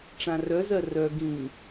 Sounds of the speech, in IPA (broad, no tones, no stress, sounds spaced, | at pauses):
ʈ͡ʂ ã r œ z ɜ r œ ɡ ĩ